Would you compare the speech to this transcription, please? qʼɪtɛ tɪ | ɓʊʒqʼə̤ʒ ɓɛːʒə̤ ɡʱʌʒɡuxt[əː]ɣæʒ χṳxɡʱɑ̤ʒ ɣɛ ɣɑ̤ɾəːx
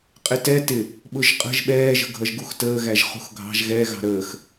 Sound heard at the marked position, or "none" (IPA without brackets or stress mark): əː